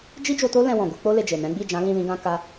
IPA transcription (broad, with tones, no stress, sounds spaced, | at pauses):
d͡ʒ i˦ d͡ʒ o˧ t o˦ l ɛ̃˧ w ɔ̃˨ ɡ u˧ k͡p o˦ l e˧ d͡ʒ e˨ n ɛ̃˨˦ ɡ͡b i˦˨ d͡ʒ ã˨˦ l ĩ˦˨ l ĩ˧ ɡ ã˧ k a˧